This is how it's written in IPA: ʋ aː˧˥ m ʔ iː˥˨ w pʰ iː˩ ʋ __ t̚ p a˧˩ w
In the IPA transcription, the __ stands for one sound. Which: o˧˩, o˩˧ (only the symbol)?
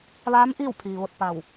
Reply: o˧˩